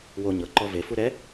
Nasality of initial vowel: oral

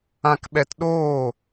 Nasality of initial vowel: nasal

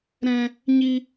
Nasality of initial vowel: nasal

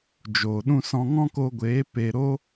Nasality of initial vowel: oral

